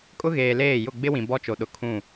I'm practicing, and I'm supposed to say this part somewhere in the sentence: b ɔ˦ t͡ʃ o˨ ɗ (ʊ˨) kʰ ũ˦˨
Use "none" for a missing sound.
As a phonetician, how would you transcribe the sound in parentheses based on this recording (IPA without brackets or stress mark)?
ʊ˨